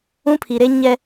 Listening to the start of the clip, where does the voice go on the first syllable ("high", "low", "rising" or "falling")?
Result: high